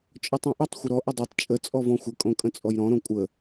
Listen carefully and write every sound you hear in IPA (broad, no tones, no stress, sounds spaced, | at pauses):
t͡ʃʼ ɔ tˤ õ ʔ ə tˤ xʷ ɪ ɾ ɔ ʔ ɪ dˤ o tˤ t͡ʃʼ ə t͡sʼ ɔ v ɔ̃ xʷ ə kʼ õ kʼ ə̃ t͡sʼ ɔ j ɾ ɔ̃ ɾ õ kʷʼ ə